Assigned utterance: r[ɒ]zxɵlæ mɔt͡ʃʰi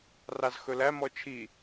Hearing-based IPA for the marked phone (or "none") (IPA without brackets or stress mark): ɑ